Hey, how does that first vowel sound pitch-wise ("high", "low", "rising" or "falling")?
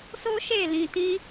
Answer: high